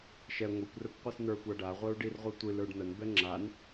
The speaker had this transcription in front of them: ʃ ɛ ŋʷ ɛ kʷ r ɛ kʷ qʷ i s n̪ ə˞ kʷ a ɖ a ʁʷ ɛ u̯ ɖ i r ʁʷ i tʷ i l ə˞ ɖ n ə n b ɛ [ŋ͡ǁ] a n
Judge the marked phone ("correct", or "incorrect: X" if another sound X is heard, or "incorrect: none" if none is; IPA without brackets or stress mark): correct